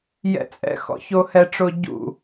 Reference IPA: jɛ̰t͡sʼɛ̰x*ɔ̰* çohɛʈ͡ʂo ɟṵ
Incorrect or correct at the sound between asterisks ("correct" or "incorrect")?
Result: correct